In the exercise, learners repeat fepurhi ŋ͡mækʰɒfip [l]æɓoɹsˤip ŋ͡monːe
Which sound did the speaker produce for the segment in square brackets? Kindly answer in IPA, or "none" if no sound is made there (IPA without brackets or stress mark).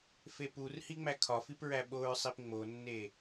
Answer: ɹ